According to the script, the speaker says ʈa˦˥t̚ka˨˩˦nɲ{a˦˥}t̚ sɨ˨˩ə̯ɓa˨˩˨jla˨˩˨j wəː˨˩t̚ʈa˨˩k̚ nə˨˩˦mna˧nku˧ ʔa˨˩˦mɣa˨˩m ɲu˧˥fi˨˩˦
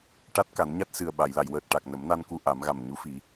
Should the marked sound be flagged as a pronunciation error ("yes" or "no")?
no